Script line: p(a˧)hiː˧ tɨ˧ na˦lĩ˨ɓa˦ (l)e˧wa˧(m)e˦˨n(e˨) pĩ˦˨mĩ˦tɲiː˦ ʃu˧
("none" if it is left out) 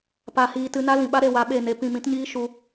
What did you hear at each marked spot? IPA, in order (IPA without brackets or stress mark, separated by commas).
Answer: a˧, ɾ, ɓ, e˧